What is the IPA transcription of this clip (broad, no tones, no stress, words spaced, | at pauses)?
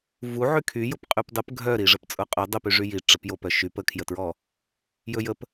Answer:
vuʕy kʰyjʊp qʼypdˤəp ɡʱœɾi ʐəpt͡sʼʊqʼɵ dˤəpy ʐyji ʈ͡ʂəpjopœ ʃyp əkʰjətɹɔ | jɵjəp